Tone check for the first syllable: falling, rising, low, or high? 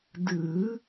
rising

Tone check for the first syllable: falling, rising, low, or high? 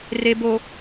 low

